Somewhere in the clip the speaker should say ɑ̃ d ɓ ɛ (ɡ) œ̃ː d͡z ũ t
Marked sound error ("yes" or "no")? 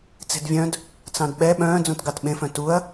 yes